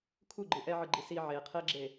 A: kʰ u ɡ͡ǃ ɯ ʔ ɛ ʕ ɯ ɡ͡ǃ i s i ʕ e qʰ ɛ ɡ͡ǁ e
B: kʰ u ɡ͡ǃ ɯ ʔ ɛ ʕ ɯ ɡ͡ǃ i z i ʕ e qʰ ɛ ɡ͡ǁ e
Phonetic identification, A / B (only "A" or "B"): A